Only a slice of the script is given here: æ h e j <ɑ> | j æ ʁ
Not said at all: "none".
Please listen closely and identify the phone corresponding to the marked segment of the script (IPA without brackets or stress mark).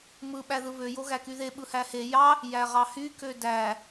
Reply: ɑ